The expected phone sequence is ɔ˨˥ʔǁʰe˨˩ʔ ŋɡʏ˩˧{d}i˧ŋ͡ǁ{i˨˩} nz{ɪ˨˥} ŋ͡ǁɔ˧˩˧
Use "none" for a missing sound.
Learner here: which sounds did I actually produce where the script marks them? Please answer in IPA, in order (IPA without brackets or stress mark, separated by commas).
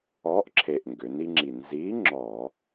n, i˨˩, i˨˥